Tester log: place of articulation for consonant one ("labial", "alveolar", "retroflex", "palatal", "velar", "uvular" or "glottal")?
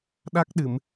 alveolar